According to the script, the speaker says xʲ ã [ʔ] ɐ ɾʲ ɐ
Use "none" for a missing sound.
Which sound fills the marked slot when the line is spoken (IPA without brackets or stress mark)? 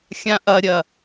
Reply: ʔ